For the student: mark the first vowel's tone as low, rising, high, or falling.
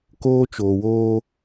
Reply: high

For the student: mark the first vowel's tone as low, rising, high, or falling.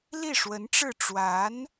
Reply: falling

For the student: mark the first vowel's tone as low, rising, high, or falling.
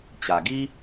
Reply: low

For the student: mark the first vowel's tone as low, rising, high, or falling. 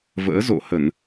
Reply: rising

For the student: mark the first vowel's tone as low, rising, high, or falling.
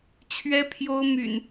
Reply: high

